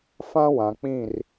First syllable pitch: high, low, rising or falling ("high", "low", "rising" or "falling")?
high